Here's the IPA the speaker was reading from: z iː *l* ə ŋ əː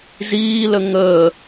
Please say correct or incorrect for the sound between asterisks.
correct